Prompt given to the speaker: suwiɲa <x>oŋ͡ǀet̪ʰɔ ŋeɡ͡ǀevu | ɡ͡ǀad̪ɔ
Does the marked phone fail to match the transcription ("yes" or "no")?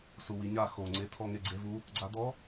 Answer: no